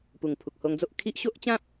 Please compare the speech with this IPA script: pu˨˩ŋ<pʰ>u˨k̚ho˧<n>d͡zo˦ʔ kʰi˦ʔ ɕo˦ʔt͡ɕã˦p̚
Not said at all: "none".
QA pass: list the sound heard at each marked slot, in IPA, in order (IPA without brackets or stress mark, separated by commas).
pʰ, ŋ